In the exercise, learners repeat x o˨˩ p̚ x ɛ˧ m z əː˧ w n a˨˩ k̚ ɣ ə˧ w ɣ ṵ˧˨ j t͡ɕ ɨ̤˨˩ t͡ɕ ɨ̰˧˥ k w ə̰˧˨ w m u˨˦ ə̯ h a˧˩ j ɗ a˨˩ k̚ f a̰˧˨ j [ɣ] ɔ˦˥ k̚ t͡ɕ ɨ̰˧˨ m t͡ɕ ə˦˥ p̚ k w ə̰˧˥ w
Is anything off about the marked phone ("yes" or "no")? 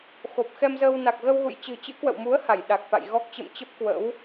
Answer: no